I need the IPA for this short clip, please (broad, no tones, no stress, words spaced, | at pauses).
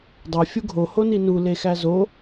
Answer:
dˤe fʲuɡʱo honinu lexæzo